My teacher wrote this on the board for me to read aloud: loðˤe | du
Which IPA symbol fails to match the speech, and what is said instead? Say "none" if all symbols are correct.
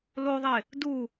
none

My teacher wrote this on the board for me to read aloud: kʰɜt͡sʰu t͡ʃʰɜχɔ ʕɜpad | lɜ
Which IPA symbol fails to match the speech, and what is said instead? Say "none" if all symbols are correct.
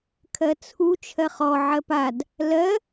none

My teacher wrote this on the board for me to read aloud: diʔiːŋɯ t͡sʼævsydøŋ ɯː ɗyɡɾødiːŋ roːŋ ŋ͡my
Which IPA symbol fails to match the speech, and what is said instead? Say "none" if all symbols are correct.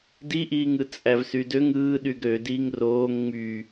none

